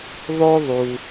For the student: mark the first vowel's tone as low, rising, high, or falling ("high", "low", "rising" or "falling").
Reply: high